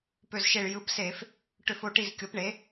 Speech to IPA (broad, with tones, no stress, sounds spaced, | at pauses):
p ø˧˩ z ʃ e˧˩ ɭ j ɯ˩˥ p s e˧˩˧ f | ʈ ø˧˩˧ f o˩˥ ʈ i˧˩ z kʲ o˩˥ p ɳ e˩˥